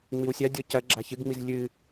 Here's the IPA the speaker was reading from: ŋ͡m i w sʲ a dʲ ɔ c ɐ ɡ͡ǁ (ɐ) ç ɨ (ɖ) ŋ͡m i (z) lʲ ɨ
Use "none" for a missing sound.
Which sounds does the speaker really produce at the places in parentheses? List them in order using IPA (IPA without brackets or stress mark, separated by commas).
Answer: a, ɡ, z